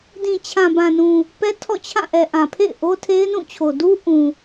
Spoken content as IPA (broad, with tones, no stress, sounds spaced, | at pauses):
d ĩ˨ t͡ɕʰ ã˨ b ã˨ n ũ˨ | p ɛ˦ tʰ ɔ̰˦˨ t͡ɕʰ ã˦˨ ʔ ɛ˨ ʔ ã˨ pʰ ḛ˦˨ ɪ̯ ʔ o˦ tʰ e˦ ɪ̯ n ũ˦˨ t͡ɕʰ o˨ d u˦ ʔ ũ˨